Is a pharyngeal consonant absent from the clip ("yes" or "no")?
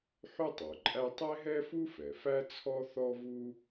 no